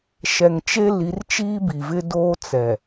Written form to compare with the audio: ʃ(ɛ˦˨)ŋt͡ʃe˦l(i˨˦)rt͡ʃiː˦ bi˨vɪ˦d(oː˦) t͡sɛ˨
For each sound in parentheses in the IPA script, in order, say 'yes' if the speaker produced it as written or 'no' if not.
no, yes, yes

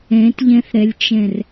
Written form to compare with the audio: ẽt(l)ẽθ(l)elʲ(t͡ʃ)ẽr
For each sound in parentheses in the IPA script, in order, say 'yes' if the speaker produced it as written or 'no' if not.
no, no, yes

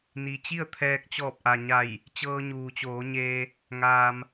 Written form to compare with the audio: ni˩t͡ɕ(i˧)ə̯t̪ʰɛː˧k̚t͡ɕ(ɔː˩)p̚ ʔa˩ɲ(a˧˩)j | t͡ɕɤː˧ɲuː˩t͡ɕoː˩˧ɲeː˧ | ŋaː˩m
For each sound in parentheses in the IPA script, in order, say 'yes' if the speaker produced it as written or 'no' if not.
no, no, yes

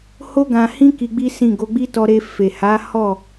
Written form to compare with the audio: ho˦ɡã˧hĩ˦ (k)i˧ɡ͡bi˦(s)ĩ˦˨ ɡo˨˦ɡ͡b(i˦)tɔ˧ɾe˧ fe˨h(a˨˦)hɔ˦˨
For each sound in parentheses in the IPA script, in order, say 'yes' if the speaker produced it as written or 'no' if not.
yes, yes, yes, yes

